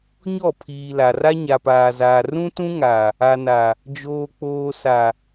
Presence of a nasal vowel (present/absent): present